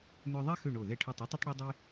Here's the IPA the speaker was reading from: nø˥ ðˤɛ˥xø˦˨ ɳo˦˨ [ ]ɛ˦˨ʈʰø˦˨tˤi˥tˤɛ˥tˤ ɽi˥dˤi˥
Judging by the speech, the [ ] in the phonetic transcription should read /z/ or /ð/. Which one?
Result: ð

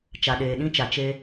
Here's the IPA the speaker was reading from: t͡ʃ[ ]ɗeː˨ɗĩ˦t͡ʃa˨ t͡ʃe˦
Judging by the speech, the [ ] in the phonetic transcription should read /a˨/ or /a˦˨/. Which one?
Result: a˨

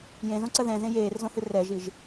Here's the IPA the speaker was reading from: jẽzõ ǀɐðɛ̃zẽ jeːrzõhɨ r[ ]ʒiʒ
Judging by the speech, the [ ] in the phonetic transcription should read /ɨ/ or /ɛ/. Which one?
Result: ɛ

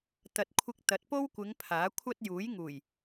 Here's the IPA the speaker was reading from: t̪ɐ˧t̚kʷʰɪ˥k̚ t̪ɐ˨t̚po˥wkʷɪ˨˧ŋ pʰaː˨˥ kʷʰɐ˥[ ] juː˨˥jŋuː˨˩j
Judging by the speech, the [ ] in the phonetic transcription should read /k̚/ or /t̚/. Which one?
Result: t̚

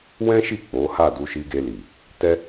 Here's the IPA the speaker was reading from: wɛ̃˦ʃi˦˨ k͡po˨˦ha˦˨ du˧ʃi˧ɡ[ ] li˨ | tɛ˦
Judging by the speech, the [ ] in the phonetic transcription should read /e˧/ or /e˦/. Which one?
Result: e˧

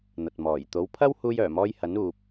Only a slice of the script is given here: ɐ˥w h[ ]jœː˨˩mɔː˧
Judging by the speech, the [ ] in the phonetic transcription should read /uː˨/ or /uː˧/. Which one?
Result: uː˧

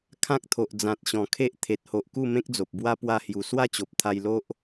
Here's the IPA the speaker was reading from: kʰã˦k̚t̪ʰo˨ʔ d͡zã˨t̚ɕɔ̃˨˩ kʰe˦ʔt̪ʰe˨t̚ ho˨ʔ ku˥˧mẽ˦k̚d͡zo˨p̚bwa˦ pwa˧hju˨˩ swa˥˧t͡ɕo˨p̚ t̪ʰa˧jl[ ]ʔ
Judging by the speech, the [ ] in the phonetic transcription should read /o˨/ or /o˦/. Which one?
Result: o˦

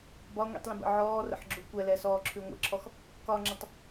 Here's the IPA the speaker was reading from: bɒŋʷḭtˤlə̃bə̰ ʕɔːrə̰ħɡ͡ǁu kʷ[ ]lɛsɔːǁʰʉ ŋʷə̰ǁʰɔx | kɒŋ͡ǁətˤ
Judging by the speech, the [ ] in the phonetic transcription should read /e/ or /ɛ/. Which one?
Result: ɛ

